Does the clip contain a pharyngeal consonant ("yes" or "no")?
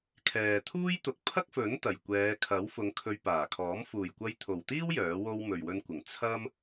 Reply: no